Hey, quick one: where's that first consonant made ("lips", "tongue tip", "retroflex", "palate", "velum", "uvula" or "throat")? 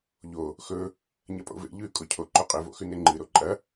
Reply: palate